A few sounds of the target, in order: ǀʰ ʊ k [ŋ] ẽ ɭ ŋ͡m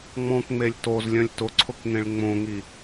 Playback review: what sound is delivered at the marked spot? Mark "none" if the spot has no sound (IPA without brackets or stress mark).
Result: ŋ